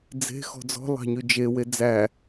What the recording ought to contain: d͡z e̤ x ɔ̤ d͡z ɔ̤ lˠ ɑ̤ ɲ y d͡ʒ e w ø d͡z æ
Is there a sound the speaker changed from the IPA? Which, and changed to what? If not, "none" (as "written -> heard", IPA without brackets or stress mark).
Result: ø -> e